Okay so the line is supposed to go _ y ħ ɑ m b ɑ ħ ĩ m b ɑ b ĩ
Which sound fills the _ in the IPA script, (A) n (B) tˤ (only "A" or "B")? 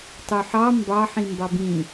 B